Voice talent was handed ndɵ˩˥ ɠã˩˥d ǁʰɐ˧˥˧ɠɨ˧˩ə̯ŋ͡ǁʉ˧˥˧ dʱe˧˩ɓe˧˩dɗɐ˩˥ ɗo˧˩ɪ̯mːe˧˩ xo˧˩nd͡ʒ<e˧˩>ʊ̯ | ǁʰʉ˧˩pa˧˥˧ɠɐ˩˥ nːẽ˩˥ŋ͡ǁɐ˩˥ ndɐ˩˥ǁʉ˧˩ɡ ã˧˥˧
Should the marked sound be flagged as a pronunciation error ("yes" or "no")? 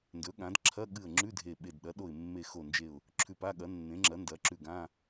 no